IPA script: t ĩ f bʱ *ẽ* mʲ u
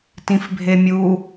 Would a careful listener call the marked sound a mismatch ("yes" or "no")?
yes